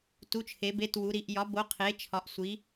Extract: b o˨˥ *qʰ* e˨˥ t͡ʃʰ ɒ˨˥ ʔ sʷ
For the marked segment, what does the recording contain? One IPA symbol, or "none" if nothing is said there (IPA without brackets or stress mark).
qʰ